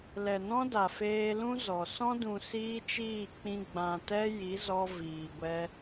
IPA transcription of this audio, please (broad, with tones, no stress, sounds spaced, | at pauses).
l ɛ˨ n ɔ̃˦ d a˨ f eː˧ l ũ˧ z ɔ˨ s ɔ̃˧ d ũ˨ s iː˦ t͡ʃ iː˦˨ k͡p ĩ˧ ɡ͡b ã˨ t ɛ˧ j i˨˦ z ɔ˧ v iː˨ ɡʷ ɛ˧